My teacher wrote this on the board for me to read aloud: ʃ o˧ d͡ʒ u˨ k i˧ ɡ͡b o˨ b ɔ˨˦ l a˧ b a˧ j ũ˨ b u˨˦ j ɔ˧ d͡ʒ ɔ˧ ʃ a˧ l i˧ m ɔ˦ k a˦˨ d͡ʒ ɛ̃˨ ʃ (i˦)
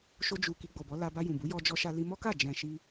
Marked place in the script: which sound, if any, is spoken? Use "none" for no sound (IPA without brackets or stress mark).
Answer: i˧